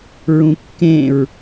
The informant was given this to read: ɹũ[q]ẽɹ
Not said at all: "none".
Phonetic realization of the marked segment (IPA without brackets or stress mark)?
kː